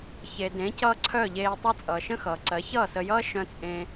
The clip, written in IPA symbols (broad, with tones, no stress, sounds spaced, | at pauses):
ç e˨ d ẽ˨˦ c ʌː˧ ǀʰ œ˦˨ ʎ eː˧ tˤ ʌ˦ t͡sʼ ʌː˨ ʃ ə̃˦ x ʌː˨ ǀ ɜ˨˦ ç ʌː˦˨ s ə˧ j ʌː˦ ʃ œ̃˦ t͡sʼ ẽ˦